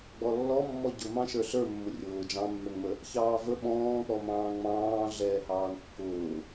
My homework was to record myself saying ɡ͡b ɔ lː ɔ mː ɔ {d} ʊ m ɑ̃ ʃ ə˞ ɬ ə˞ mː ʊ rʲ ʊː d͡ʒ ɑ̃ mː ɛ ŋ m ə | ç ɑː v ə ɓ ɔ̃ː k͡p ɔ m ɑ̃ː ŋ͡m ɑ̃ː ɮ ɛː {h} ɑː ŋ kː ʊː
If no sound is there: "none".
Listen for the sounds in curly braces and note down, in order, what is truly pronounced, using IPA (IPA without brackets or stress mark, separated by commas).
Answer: ɟ, h